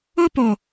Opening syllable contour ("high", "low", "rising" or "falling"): high